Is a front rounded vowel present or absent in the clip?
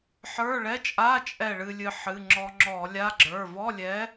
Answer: absent